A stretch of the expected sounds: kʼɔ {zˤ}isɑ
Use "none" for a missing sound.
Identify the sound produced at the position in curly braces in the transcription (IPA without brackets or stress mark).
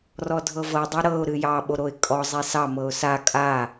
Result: zˤ